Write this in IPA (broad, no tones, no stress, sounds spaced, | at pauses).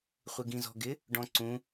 χʷ ɪ ɡ ĩ z ɔ̤ ɡ ɪ | ɖ ɔ̃ ǀ ũ